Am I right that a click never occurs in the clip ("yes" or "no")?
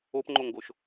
no